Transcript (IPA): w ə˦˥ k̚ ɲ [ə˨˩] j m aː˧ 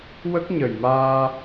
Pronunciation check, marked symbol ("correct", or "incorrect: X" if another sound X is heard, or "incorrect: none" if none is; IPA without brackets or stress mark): correct